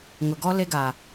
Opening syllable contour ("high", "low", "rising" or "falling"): low